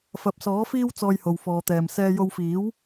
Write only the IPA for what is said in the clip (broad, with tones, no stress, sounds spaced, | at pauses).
f ɐ˨ p̚ s ɔː˨˥ f iː˥ w t͡s ɔː˧ j h o˨ w f ɔː˨ t̪ ɛː˨ m s ɛː˧ j o˧ w f iː˨˥ w